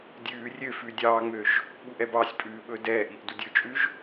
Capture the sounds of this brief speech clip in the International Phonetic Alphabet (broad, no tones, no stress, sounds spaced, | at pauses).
dʲ ʉː rʲ ø f ʉ dʲ ɑː ŋ͡m ø ʒ | ɓ u ʔ ɛ b ɑ sʲ pʼ ʉː ɓ ɵ d ɛː ʔ i ʔ d u dʲ ɵ t͡ʃʼ ʉ ʒ